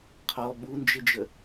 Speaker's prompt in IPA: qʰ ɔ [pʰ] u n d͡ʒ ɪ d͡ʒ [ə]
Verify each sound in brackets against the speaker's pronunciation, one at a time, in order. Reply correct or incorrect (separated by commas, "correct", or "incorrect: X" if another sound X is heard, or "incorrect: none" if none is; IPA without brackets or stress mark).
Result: incorrect: ɓ, correct